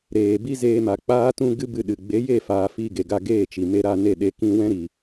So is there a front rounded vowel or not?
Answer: no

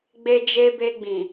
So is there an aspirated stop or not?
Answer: no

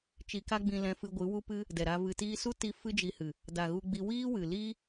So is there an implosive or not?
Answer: no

